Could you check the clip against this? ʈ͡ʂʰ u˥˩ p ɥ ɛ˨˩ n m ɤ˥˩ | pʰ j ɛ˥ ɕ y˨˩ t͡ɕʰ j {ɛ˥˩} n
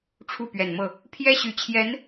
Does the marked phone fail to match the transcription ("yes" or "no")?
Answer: yes